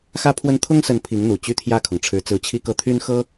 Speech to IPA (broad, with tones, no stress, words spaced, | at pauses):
xä˥pʰwə˥n t̪ʰʊ˥ŋsə˧˥n pʰi˧˥ŋn̪u˨˩ t͡ɕy˥˧t̪ʰjä˥˩kʰʊ˩ŋʈ͡ʂʰɻ̩˧˥ t͡sɹ̩˧˥t͡ɕʰi˥˧kɤ˥˩ t̪ʰy˥n xɤ˥